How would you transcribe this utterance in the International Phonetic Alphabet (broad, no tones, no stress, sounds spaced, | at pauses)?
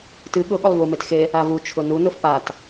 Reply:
t ɨ ɠ ʊ ɠ ʊ lˠ v u m e t x e | a v u t͡ʃʰ ʊ n u n ʊ f p a t